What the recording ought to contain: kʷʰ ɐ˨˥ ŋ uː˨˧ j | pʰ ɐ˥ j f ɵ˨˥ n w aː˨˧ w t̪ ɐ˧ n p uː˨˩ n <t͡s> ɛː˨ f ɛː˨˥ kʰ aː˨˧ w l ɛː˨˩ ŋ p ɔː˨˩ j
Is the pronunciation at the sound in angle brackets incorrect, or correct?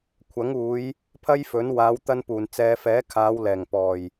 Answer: correct